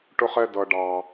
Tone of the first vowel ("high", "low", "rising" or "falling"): high